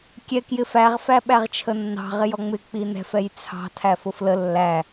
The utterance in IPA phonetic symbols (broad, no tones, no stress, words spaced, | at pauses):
kʲɛ kjɪfæʁ fæɓæʁt͡ʃʰənːɑ̤ ʁɪjɔŋ͡mɪ k͡pinɛ̤f ɛjt͡sʰɑ̤ tʰæfʊflə lːæ